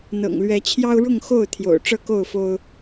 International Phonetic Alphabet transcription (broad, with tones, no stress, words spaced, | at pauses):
n̪ɤ̰˨˩ŋlɥɛ˨˦t͡ɕʰjɑ˦ʊ̯ ɻʊ˥˨ŋxo˥˨ʊ̯ t̪ʰjo̰˨˩ʊ̯ʈ͡ʂɤ˥˨ ko˥˨ʊ̯fo˦ʊ̯